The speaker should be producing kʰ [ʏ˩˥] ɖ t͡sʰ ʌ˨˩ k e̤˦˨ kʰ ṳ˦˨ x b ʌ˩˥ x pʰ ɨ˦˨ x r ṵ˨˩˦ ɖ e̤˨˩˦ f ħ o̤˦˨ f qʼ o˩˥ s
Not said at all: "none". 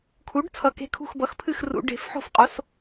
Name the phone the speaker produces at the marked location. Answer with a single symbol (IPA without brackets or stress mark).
u˩˥